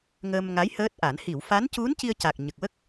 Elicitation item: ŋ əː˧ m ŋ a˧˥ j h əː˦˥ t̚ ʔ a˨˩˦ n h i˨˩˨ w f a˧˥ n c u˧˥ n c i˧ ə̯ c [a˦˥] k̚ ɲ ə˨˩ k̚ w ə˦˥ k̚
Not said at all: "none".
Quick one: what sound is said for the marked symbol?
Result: a˨˩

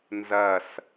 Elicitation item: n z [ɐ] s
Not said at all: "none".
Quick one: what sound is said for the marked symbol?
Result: ɐ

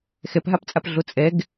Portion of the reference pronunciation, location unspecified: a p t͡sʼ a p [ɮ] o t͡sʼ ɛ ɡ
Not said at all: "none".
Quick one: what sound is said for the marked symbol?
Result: ɮ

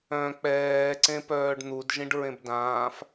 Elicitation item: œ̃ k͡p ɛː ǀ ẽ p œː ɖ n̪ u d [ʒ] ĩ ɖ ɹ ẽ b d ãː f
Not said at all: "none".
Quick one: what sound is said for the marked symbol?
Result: ʒ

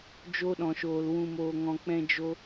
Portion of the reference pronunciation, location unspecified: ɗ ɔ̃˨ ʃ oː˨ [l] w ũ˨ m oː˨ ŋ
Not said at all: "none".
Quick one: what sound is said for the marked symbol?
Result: l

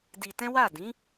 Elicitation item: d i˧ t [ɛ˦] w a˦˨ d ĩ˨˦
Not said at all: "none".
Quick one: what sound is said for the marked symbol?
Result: ɛ̃˦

